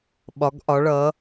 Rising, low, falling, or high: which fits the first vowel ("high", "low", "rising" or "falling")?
rising